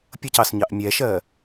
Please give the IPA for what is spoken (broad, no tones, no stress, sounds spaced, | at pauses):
pʲ ʌ c ɑ s ɲ ɑ ʔ mʲ ɛ ʃ ɜ